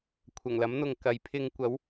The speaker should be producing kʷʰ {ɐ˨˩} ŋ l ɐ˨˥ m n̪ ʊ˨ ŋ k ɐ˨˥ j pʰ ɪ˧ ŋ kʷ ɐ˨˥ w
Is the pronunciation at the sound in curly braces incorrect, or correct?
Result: correct